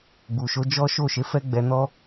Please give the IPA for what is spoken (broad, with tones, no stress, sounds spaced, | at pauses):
ɡ͡b u˨ ʃ o˨˦ d͡ʒ ɔ˦ ʃ o˦˨ ʃ e˨˦ f ɛ˦ ɡ͡b ɛ˧ n ɔ˦